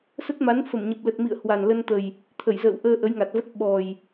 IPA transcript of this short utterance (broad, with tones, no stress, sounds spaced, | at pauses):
s ə˦˥ t̚ m a˨˦ n f ə˧˩ m ɲ ə˨˩ p̚ l ə˨˩ t̚ m ḭ˧˨ ə̯ h w a˨˩ n l ə˧ n t̪ ə˨˩ j | t̪ʰ ə˧˩ j z ə̰ː˧˨ w ʔ əː˧ ʔ ə˨˦ j ŋ a˨˩ t̚ v ə˦˥ t̚ ɓ ɔ˨˩ j